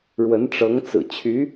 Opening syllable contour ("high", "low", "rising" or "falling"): rising